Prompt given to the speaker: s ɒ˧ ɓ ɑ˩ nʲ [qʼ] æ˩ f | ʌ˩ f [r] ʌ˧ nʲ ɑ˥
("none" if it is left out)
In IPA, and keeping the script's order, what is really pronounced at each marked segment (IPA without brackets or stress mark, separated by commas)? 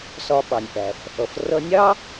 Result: ʔ, r